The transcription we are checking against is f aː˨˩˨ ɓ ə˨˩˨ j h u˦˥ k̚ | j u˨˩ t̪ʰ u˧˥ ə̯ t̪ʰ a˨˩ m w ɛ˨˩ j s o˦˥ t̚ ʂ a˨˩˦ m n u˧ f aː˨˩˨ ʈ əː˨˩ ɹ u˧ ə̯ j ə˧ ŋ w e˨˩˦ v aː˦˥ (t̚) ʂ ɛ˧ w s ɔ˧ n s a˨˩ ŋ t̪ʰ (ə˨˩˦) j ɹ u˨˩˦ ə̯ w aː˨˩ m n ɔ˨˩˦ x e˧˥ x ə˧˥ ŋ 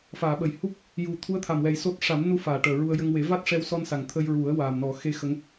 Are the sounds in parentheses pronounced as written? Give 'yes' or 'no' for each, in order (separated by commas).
yes, no